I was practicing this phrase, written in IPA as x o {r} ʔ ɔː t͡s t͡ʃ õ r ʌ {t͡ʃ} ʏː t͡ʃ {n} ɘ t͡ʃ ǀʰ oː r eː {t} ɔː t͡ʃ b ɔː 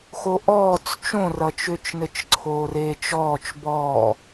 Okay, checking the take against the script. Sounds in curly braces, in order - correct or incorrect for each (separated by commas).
incorrect, correct, correct, incorrect